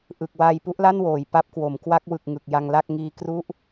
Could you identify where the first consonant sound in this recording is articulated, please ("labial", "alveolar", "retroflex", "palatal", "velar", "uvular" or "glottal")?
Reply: glottal